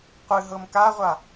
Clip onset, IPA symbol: qʷ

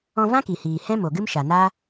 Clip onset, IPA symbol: ɔ̃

